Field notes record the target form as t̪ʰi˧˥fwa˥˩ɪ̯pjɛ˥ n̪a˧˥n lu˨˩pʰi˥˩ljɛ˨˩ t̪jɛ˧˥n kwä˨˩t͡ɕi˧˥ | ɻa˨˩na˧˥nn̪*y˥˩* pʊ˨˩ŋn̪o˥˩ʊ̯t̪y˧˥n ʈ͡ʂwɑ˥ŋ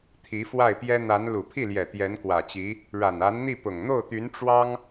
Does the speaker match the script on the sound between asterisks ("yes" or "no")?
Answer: no